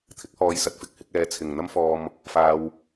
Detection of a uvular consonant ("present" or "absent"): absent